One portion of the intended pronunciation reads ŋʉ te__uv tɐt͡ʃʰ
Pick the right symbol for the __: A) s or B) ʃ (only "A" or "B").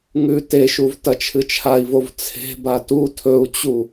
B